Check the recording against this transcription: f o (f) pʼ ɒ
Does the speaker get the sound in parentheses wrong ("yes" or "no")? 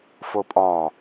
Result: yes